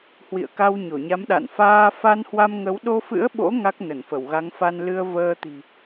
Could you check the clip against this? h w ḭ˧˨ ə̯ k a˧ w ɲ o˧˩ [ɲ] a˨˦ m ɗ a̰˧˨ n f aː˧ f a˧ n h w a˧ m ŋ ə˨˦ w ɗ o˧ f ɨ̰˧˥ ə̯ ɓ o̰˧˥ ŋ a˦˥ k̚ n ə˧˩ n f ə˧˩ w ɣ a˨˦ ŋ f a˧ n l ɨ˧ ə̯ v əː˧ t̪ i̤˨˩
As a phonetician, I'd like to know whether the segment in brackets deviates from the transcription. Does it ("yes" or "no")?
no